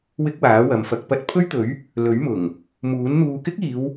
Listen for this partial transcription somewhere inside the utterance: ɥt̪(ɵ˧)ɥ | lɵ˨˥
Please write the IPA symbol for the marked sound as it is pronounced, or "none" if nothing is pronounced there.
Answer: ɵ˨˥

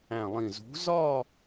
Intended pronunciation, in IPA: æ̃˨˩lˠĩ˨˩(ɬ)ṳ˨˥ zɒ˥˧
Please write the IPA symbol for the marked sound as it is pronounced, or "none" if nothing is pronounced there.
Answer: z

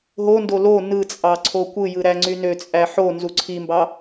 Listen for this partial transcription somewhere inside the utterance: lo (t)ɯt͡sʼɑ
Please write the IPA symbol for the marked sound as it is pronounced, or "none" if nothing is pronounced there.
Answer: n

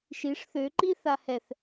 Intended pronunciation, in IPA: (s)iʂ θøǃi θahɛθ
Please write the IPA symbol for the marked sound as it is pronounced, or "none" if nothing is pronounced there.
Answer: ʃ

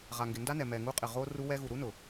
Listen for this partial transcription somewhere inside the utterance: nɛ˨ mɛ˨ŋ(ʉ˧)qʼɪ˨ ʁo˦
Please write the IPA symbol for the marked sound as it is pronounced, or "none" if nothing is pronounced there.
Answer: u˧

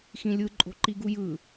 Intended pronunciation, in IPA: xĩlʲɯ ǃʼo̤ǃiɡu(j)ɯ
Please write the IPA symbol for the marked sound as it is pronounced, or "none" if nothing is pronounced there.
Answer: j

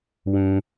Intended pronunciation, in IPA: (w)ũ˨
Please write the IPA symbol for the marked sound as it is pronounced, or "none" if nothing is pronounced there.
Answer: w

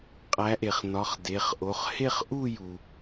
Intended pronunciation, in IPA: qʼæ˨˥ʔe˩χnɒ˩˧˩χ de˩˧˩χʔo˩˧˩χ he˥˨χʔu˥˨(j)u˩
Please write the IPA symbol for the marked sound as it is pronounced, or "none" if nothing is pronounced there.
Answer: j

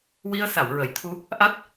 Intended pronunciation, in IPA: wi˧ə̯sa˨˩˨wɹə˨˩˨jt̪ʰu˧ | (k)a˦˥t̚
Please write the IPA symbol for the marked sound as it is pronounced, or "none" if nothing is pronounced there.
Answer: ʔ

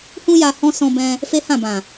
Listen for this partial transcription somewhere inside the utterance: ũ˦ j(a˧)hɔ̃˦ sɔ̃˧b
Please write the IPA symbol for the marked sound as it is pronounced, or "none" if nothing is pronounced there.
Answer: a˧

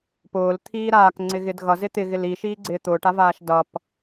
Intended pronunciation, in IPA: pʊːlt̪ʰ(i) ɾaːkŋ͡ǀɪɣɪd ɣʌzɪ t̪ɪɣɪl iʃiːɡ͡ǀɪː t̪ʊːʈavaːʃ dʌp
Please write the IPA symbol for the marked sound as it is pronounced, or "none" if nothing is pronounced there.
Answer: iː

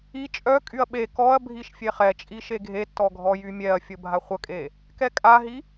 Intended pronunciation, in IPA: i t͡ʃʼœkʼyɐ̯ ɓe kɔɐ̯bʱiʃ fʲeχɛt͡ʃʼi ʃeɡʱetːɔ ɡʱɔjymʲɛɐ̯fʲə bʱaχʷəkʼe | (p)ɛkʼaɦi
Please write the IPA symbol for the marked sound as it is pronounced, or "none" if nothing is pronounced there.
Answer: k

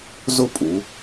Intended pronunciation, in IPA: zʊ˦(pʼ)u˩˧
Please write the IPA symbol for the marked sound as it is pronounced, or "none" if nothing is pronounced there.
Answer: pʼ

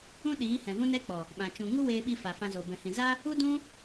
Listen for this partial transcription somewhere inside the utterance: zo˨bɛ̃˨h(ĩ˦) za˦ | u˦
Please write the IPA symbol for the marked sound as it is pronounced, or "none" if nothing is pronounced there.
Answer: ĩ˨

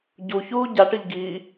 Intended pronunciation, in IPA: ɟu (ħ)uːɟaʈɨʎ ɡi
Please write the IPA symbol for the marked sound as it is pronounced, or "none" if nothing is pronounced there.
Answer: ç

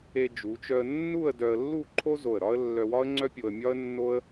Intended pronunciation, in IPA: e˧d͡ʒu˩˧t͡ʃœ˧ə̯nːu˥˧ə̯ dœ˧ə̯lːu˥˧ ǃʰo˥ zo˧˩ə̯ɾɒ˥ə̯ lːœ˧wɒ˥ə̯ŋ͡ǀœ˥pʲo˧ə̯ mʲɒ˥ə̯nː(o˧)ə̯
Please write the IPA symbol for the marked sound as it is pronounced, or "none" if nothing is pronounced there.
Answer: o˥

